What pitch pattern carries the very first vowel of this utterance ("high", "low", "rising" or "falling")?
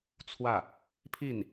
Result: falling